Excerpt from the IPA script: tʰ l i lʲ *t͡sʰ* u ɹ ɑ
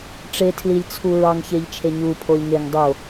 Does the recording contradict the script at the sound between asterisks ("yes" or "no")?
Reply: no